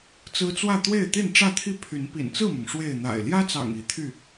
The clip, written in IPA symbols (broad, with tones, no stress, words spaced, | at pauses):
t͡sɹ̩˦t͡swä˥˨ t̪we˥˨ɪ̯t̪i˥˨nʈ͡ʂä˥˨t̪ʰi˥˨ pʰy˨˦npḭ˨˩nt͡sɹ̩˥˨mʊ˩ŋ ʂwe˥˨ɪ̯ n̪a̰˨˩ɪ̯ ljä˦t͡sɑ̰˨˩ŋ i˨˦t̪ʰy˥˨